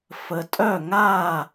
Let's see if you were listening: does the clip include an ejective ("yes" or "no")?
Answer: yes